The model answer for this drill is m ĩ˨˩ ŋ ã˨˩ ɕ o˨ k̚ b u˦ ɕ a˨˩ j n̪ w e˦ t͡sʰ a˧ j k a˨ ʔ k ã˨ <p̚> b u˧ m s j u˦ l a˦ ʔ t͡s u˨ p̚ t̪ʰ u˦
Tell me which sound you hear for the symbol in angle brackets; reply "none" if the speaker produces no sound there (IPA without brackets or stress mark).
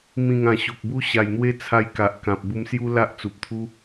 p̚